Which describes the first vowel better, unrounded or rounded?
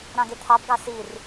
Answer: unrounded